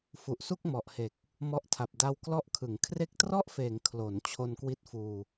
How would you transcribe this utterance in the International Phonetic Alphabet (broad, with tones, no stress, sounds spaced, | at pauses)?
f u˨˩ ʔ s u˥˩ k̚ m ɔ˨˩ ʔ h e˨˩ k̚ | m ɔ˦˥ ʔ tʰ a˨˩ p̚ d a˧ w k l ɔ˦˥ ʔ kʰ ɯ˩˦ ŋ kʰ r e˦˥ k̚ t r ɔ˥˩ ʔ f eː˩˦ ŋ kʰ l o˩˦ n t͡ɕʰ o˧ n k w i˦˥ t̚ f uː˧